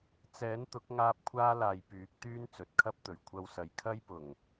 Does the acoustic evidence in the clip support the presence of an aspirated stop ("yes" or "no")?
yes